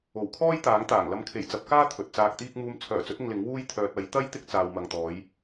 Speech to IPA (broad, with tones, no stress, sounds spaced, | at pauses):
o˨˩ w kʰ ɔː˥ j t̪ aː˨˥ ŋ t̪ aː˨˩ ŋ l ɐ˨˧ m kʰ e˨˩ j t͡s ɐ˨˥ p̚ k aː˥ t̪ʰ ɵ˨ t̚ t͡s aː˧ k̚ t̪ iː˥ k̚ m uː˧ m t͡sʰ œː˨˩ t͡s ɵ˨˥ t̚ ɪ˧ ŋ l ɪ˨˥ ŋ w uː˥ j t̪ʰ œː˨ t̚ ɐ˨˥ j t̪ ɐ˥ j t̪ ɪ˥ k̚ t͡s aː˨ w m ɐ˨ ŋ t̪ ɔː˨˥ j